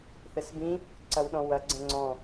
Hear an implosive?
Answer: yes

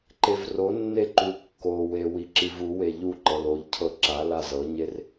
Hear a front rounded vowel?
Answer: no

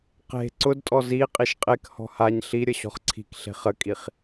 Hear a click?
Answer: yes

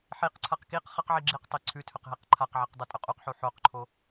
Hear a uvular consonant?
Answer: yes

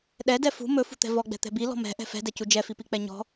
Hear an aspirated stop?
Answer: no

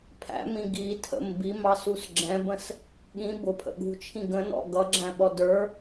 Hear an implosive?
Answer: yes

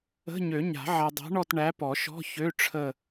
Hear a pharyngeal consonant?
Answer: yes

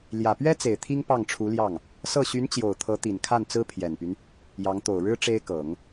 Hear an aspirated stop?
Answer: yes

